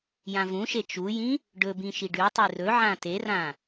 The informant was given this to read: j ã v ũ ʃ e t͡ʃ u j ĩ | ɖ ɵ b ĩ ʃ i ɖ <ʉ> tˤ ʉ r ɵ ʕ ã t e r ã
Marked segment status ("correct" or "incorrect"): correct